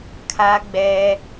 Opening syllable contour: low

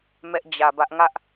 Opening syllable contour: high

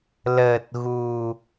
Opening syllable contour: low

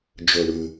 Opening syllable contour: low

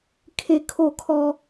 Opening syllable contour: high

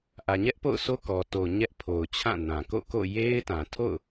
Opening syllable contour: low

